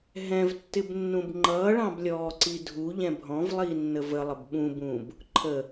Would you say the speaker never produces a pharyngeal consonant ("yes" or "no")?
yes